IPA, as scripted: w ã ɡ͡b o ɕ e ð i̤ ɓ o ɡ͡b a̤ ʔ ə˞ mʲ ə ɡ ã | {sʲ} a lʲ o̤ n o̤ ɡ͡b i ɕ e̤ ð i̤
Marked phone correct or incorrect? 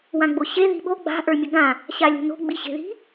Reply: incorrect